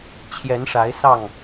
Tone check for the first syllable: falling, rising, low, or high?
rising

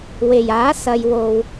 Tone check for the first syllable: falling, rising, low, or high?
low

